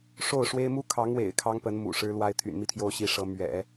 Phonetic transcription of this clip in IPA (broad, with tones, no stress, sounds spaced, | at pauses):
ʂ o˥˩ ʊ̯ ʂ w e˥ ɪ̯ m u˥ kʰ ɑ˧˥ ŋ w ḛ˨˩ ɪ̯ kʰ ɑ˥ ŋ p ə˧˥ n m ṵ˨˩ ʂ ɻ̩˥ l w a˥ ɪ̯ t̪ʰ y̰˨˩ n m i˥˩ t̪ʰ j o˥ ʊ̯ ɕ i˧˥ ʂ ɤ˧˥ m ɥ ɛ̰˨˩˦